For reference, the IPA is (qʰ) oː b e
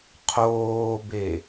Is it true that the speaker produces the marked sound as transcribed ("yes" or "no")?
yes